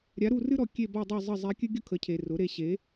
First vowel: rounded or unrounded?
unrounded